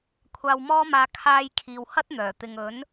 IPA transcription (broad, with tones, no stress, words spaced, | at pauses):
kʷʰaː˨wmɔː˧maː˨ kʰaː˧j kʰiː˨whɐ˥t̚n̪œː˨˩ t̪ɪ˨ŋ ɵ˨˥n